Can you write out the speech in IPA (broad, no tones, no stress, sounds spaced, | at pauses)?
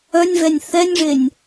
œ nʲ v ɛ nʲ θ ɛ nʲ ʐ e nʲ